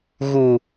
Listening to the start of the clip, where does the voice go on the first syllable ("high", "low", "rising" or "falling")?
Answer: low